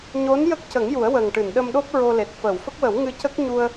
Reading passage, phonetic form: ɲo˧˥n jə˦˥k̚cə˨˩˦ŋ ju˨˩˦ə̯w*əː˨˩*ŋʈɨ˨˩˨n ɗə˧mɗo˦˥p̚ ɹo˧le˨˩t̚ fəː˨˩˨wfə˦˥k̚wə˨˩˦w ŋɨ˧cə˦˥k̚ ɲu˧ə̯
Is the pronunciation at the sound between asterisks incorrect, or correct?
correct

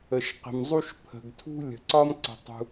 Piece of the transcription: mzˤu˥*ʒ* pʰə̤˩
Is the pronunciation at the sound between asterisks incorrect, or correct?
incorrect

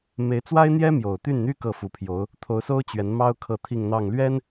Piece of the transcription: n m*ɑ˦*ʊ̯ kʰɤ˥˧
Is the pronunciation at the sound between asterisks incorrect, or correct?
incorrect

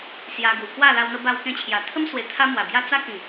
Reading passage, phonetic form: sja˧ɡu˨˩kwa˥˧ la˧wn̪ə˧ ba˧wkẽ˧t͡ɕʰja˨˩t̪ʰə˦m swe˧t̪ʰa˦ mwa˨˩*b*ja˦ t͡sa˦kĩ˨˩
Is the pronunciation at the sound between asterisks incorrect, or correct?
correct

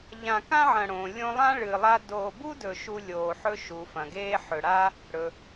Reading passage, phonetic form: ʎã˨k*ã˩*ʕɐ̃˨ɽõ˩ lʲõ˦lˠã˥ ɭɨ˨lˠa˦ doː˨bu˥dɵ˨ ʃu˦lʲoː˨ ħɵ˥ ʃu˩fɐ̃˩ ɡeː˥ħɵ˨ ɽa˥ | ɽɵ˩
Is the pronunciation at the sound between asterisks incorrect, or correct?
incorrect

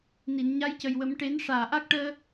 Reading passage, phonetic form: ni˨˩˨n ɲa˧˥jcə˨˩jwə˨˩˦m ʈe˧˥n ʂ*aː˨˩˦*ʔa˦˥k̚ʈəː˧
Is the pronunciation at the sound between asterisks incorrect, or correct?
incorrect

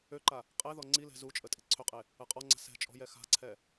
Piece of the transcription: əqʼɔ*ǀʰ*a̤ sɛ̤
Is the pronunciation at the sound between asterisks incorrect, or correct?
incorrect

